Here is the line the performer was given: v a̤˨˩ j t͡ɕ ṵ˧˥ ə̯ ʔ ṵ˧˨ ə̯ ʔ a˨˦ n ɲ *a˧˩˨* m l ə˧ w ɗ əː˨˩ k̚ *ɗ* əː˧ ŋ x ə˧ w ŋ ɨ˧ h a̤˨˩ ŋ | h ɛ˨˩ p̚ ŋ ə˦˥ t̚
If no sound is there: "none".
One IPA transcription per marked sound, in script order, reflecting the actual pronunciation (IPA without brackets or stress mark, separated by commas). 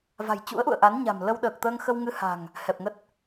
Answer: a̤˨˩, t̪